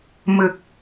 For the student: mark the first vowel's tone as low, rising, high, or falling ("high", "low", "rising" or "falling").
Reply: low